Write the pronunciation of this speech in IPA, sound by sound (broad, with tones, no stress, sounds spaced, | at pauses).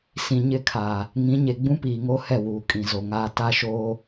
s ĩ˨ ɲ ɪ˦˨ kʰ aː˨ | ŋ ĩ˨˦ ɲ e˨ ɡ͡b ũ˦ p iː˨ ŋ o˦ h ɛ˦˨ w uː˨ kʼ ĩ˨ z o˨ ŋ aː˦ t a˦ ʃ oː˦